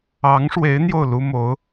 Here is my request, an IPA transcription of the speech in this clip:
ɑ˧˥ ŋ ʂ w e˧˥ ɪ̯ n̪ j o˥˩ ʊ̯ l u˥ m o˧˥ ʊ̯

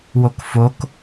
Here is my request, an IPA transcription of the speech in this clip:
w o k f o k

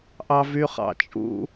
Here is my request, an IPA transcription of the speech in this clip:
ʔ ɑ v y χ ɑ̰ t͡ʃʼ ṵ

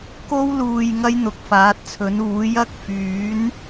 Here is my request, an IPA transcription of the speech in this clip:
k o˥ w l uː˨ j ŋ ɐ˥ j n̪ ʊ˨ k̚ f aː˨˥ t̚ t͡sʰ ɵ˨˥ n uː˨˥ j ɐ˥ k̚ f yː˨˥ n

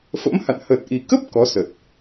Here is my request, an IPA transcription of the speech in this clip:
f ə̰˧˥ m h a̰˧˨ n h ə˨˩ t̚ ʔ i˨˩ k ə˦˥ p̚ k ɔ˨˦ s ə˨˩ t̚

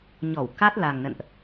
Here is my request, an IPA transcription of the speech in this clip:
ɲ ɔ˧˩ w k a˦˥ t̚ l a˨˩ ŋ n ə̰˧˨ n ʔ

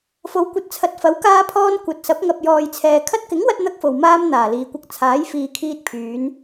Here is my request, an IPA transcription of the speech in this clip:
f o˨˥ w kʷ ɐ˨ t̚ t͡sʰ ɐ˨ t̚ f ɐ˨˥ w k aː˥ pʰ ɔː˥ n kʷ ɐ˨ t̚ s ɐ˨˥ p̚ ŋ ɐ˨ p̚ j ɔː˨ j t͡sʰ ɛː˨ kʰ ɐ˧ t̚ k ɪ˨˥ ŋ w ɐ˥ t̚ n̪ ɐ˥ k̚ f o˨ w m aː˥ m n̪ aː˨˩ l iː˨ kʷ ɐ˧ k̚ t͡sʰ aː˨˥ j f iː˨ kʰ iː˧ t̚ pʰ yː˨˧ n

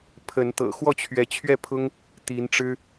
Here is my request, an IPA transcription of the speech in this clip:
pʰ ə˨˦ n t̪ ɤ̰˨˩ x w ɔ˥˨ t͡ɕʰ ɥ ɛ˨˦ t͡ɕʰ ɥ ɛ˥˨ pʰ ʊ˦ ŋ | t̪ i˨˦ n ʈ͡ʂ ɻ̩˦

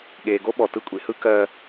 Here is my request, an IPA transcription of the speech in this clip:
ɠ eː˨ ɡ o˦ ɓ ɔ˨ t ɯ˦ kʷʼ ḛ˦ h ɯ˦ k ɜː˦

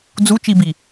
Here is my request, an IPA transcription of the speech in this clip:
d͡z u t͡ʃ i b i

